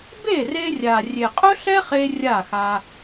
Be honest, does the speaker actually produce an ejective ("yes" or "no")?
yes